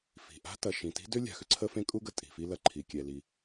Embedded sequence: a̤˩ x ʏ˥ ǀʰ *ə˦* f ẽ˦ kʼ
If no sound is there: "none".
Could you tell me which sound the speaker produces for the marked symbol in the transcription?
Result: ə˦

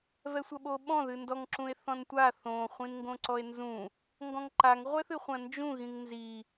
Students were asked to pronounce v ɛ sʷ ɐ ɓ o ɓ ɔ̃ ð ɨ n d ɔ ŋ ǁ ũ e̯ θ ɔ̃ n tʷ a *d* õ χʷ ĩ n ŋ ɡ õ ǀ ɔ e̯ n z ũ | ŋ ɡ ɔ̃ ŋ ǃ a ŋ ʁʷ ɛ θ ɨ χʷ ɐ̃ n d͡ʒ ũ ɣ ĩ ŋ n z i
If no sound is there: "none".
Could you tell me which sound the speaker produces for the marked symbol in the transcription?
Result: θ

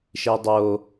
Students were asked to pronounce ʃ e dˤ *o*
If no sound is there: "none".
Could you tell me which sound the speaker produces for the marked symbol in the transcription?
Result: o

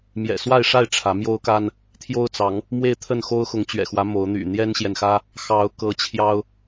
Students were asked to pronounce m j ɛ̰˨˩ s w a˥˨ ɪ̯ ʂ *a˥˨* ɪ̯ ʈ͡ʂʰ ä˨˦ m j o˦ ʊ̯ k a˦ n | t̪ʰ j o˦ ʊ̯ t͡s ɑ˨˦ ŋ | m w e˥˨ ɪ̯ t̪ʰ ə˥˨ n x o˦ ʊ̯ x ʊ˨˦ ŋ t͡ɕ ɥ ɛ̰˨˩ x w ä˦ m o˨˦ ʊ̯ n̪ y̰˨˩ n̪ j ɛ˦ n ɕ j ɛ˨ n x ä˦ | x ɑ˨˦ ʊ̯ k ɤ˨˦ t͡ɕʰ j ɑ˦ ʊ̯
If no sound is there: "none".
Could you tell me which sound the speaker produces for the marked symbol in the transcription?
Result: a˥˨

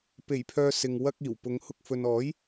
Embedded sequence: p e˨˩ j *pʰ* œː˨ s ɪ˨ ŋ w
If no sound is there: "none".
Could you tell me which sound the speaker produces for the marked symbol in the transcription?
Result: pʰ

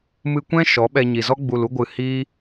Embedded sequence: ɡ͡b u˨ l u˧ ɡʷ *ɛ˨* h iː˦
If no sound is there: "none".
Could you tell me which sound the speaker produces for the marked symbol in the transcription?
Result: ɨ˨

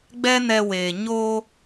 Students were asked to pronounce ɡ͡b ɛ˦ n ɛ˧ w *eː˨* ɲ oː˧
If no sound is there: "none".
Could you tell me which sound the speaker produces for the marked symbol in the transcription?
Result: eː˨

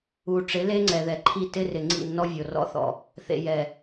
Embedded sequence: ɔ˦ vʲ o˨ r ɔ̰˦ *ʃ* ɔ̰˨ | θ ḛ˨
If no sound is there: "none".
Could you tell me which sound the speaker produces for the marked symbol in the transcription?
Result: θ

